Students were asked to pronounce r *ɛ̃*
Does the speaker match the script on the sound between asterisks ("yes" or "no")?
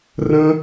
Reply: no